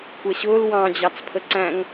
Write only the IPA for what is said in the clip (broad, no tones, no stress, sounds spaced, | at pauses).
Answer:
kʷ ɛ ɕ ʊː l w ɑ̃ d͡ʑ ɑ t͡s pʰ ə ǀ æ̃ ŋ